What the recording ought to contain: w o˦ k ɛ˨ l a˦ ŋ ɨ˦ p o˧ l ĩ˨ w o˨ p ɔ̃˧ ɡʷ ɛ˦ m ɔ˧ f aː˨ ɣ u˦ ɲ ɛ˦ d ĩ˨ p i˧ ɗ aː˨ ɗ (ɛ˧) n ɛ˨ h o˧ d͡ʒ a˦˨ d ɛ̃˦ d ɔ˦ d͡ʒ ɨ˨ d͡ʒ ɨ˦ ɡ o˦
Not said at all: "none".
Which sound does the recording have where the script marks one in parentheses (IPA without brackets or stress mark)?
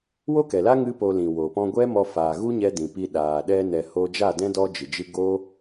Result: ɛ˧